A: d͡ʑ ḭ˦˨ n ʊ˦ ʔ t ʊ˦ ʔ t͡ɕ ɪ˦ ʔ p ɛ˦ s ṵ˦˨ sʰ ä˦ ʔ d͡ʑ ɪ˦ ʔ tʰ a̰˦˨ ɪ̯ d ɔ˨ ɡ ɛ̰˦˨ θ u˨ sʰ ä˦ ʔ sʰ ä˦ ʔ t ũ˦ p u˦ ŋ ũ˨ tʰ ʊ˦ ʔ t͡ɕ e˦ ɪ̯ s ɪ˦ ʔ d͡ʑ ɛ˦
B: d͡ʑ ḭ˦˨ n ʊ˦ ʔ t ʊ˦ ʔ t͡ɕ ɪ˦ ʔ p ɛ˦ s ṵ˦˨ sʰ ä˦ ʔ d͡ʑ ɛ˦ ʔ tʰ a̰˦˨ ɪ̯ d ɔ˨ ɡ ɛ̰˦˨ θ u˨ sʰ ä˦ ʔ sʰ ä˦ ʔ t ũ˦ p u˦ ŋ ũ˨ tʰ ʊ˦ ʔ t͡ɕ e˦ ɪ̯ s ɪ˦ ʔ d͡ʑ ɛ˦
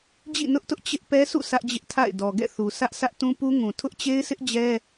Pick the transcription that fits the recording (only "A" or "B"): A